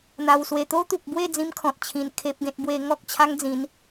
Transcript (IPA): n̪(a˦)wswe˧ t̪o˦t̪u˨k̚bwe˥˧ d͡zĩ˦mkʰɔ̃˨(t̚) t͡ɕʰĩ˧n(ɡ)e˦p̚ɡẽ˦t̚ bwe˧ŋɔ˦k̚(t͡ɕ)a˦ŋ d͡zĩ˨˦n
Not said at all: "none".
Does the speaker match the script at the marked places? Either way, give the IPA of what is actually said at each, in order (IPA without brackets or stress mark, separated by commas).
a˧, t̚, kʰ, t͡ɕʰ